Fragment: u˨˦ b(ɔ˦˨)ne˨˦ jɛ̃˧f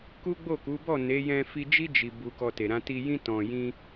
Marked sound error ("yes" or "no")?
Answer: no